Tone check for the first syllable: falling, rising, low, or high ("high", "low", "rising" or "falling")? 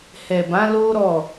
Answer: low